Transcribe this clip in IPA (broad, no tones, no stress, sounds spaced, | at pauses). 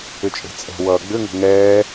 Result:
ʏ t͡ʃʼ e̤ t͡sʼ ɛ̤ w ʌː ɡ͡b ʏ ŋ o̤ ŋ ɛː